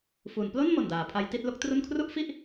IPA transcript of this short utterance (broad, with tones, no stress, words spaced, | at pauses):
fu˩˦n plo˥˩n mo˨˩ndaː˩˦pʰa˦˥jti˥˩t̚ lo˥˩k̚tru˥˩n kʰru˥˩ʔfi˥˩ʔ